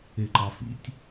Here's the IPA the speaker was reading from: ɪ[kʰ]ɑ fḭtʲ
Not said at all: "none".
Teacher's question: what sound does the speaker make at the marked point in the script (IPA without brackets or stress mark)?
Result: ǃ